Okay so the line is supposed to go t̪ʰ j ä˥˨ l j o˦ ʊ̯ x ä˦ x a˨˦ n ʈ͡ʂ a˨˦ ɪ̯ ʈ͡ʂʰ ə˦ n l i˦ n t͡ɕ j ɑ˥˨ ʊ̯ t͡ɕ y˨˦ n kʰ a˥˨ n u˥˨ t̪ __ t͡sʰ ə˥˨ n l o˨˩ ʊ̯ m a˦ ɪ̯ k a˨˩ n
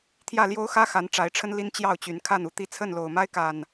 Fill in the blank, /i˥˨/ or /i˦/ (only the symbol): i˦